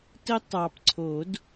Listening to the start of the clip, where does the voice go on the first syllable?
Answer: high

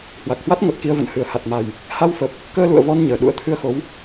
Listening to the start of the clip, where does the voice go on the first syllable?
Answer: low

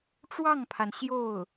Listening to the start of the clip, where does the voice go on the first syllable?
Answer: falling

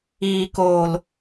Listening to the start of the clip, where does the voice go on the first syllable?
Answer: low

